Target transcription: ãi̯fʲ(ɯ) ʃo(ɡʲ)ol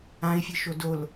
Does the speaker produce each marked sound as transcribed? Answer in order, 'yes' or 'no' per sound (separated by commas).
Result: yes, no